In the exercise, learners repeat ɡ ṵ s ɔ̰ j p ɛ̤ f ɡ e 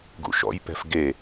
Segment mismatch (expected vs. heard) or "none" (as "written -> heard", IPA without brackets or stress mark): s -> ʃ